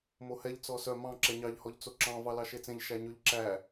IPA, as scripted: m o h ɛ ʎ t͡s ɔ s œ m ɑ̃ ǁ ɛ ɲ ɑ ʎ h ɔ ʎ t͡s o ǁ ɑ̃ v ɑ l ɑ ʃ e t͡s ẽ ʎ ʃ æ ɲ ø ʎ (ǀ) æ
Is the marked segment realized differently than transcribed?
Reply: yes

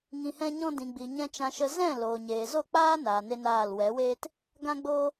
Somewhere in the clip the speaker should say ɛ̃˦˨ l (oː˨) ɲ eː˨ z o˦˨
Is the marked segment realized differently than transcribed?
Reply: no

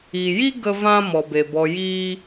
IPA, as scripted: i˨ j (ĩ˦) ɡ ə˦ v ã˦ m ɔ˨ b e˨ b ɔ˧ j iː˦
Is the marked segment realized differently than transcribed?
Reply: yes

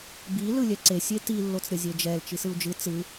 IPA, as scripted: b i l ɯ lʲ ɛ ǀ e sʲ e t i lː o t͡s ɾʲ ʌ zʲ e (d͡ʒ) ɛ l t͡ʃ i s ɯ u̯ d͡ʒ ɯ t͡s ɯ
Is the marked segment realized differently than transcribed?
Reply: no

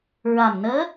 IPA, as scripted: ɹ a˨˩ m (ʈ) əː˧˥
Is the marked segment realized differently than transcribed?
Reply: yes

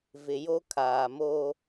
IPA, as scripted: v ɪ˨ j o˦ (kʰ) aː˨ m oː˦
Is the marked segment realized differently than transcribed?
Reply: no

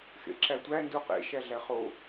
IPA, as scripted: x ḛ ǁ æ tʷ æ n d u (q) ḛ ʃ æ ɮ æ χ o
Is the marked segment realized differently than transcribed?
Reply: no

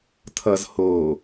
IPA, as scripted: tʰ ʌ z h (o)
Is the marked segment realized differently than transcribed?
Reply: no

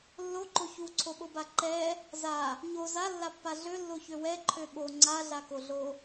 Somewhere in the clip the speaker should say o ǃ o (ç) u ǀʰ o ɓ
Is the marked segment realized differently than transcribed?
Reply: no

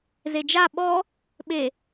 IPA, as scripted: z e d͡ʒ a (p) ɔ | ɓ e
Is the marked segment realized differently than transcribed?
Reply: yes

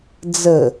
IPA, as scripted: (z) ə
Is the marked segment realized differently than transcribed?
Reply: yes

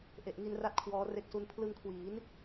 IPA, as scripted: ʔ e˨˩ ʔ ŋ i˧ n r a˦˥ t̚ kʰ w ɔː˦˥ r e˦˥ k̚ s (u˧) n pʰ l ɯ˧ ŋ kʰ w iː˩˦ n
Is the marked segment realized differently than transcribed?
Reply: yes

